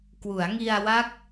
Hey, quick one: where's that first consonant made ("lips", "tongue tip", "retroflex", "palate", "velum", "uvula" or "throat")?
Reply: velum